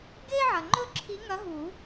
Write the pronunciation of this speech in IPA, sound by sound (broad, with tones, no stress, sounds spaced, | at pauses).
ɡ e˥ ʕ ɐ˨ ŋ͡ǃ ɵ˥ ǁʰ i˧˥ ŋ ɐ˧˥ ɦ u˨˩˦